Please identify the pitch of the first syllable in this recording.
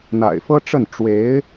low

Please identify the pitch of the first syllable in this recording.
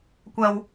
low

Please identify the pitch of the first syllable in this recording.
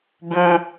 high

